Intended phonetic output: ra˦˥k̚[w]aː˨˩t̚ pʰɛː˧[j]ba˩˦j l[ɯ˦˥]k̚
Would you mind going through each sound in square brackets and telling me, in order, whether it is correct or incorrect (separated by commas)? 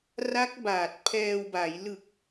incorrect, incorrect, incorrect